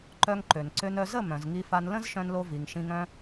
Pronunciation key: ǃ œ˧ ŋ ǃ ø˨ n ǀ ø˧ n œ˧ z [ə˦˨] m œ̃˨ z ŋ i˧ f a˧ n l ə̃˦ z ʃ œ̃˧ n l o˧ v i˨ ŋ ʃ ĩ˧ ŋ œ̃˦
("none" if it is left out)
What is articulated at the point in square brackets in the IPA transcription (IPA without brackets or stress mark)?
ə˦˨